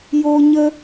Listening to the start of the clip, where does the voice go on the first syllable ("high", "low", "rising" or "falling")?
high